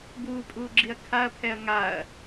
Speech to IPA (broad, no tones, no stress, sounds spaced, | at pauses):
b uː pʼ uː ɡ͡ǁ i ɐ̯ kʰ a ɐ̯ pʰ ɛ ɐ̯ ŋ a ɐ̯